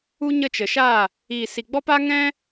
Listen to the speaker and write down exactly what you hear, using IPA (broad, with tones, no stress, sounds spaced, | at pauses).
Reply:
u˦ ɲ ə˦˨ t͡ʃ ə˨ ʃ aː˦˨ | iː˨ s i˨ ɡ͡b ɔ˦ p a˦ ŋ ɛ̃˦